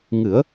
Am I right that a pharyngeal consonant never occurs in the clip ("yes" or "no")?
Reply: yes